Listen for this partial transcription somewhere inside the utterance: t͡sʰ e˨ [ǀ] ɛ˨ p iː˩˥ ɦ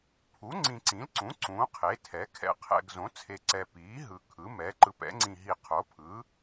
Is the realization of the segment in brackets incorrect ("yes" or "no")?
no